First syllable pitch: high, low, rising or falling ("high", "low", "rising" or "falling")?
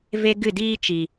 high